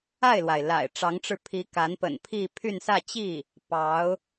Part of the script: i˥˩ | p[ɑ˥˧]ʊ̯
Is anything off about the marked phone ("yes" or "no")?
yes